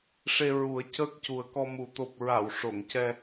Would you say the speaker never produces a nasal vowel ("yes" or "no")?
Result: yes